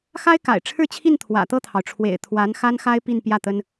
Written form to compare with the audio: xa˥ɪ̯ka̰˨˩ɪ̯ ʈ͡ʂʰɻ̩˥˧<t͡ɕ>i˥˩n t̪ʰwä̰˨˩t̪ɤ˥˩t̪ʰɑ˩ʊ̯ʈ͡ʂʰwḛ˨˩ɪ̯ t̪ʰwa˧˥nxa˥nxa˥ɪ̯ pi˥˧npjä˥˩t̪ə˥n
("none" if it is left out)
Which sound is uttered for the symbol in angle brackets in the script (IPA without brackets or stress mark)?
t͡ɕʰ